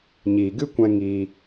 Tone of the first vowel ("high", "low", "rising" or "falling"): low